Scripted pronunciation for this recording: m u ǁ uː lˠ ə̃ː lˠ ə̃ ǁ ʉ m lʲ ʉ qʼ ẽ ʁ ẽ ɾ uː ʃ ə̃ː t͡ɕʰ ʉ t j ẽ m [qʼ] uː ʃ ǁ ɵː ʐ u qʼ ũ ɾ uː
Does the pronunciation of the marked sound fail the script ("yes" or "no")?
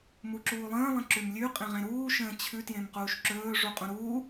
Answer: yes